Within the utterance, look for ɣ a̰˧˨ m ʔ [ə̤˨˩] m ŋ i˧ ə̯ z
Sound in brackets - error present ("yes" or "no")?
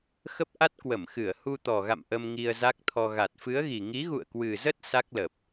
yes